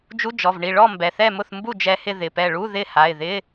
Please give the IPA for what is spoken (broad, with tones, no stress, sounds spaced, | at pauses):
d͡ʒ u˧˥˧ d͡ʒ ɔ˩˧˩ v ɳ i˧˩ ɭ ɔ˥˨ m b ɛ˩˧˩ θ ɛ˥˨ m ʊ˥˨ θ m b u˥˨ d͡ʒ ɛ˧ h ɪ˥˨ ð ɪ˩˧˩ p ɛ˧˩ ɭ u˧˥˧ ð ɪ˥˨ h a˩˧˩ ɪ̯ ð ɪ˧˥˧